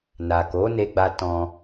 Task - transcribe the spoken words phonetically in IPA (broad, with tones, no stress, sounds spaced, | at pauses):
n a˨ k o˨˦ n e˧ ɡ͡b a˧ t ɔ̃˧